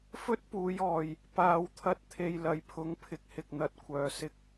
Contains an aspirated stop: yes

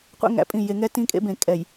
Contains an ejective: yes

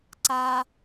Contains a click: yes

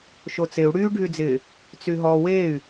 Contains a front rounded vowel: yes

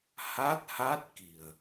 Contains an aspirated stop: no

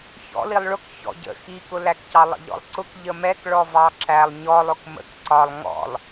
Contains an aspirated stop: no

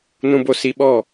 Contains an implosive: yes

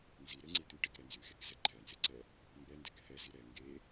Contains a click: yes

